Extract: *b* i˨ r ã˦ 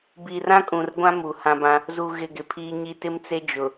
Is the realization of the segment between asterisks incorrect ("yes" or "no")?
no